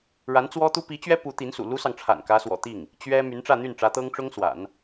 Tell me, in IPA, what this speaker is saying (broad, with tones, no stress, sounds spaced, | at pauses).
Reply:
ɻ a˧˥ n t͡s w ɔ˥ t̪ u˥ p i˧˥ t͡ɕ ɥ ɛ˥ p u˧˥ t̪ i˧˥ n s ṵ˨˩ l u˥ s ɑ˨ ŋ ʈ͡ʂʰ a̰˨˩ n k ä˧˥ s w ɔ̰˨˩ t̪ i˥˩ ŋ | t͡ɕ ɥ ɛ˥ m y˧˥ n ʈ͡ʂ ä˥˧ n̪ y˥˩ n ʈ͡ʂ ä˧˥ t̪ ɤ˥ ŋ ʈ͡ʂ ʊ˥ ŋ s w a̰˨˩˦ n